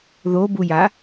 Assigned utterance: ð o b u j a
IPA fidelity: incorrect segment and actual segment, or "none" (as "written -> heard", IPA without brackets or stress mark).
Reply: none